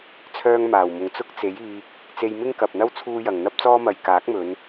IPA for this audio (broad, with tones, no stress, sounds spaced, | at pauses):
t͡sʰ œː˥ ŋ m aː˨˩ w m ʊ˨ ŋ t͡s ʊ˥ k̚ t͡s e˨˥ j iː˧ k̚ | t͡s e˧ j m ɪ˥ ŋ k ɐ˨ p̚ n̪ ɐ˥ w t͡sʰ uː˥ j ɐ˨ ŋ n̪ ɐ˥ p̚ t͡s ɔː˥ m ɐ˨ j k aː˨˥ k̚ m ɵ˨˧ n